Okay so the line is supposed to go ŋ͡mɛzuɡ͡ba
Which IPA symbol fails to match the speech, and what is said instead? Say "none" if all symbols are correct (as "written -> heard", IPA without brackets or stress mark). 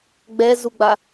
ŋ͡m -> ɡ͡b